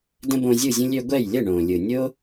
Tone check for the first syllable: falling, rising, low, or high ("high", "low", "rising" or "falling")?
high